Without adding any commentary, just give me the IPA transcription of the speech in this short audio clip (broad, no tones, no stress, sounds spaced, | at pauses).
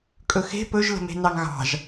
kʼ ɵ x e̤ p ɵ ʒ l ə̤ m e̤ n ɑ ŋ ɣ ɑ̤ ʒ